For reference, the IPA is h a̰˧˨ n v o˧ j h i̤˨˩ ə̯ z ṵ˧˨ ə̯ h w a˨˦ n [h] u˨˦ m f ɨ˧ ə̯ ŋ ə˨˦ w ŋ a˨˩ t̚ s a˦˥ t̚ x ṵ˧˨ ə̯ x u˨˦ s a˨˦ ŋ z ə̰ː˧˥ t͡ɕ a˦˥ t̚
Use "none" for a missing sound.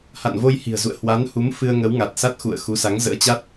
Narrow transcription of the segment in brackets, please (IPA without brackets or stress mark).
h